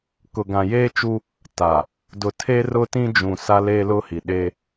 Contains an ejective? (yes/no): no